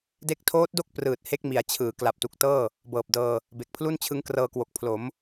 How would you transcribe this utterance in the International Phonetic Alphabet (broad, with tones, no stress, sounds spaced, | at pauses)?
d e˦˥ k̚ tʰ oː˦˥ t̚ d o˥˩ k̚ p r ɯː˨˩ t̚ h e˦˥ k̚ m i˩˦ a̯ t͡ɕʰ ɯː˩˦ k l a˨˩ p̚ t u˨˩ k̚ t ɤː˥˩ | b ɤː˨˩ p̚ d ɤː˧ | b e˨˩ k̚ pʰ l u˥˩ n t͡ɕʰ ɯ˦˥ ŋ k r ɤː˧ k w o˨˩ k̚ pʰ l o˩˦ m